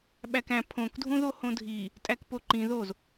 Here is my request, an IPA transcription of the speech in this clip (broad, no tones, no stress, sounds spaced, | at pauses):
ɓ æ k æ̃ pʰ õ k dʱ ũ ð o h õ dʱ i | tʼ æ k p o ǃ ĩ ð o z